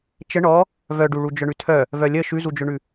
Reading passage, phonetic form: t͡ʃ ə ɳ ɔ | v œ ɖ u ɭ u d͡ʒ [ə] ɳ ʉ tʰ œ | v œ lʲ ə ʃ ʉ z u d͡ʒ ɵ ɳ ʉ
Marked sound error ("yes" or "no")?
yes